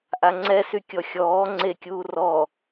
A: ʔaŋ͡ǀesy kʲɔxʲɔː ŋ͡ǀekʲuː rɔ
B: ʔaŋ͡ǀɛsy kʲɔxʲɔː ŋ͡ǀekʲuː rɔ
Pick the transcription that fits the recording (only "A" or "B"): B